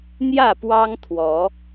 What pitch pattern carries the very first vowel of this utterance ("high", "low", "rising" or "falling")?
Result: falling